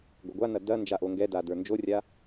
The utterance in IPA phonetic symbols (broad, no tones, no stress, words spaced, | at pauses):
ɡʷɐɡʷanɐ dɐ nd͡ʒaʔoŋɡɛda də˞nd͡ʒorʲa